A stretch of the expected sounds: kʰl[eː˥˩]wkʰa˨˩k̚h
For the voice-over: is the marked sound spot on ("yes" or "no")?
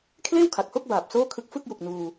yes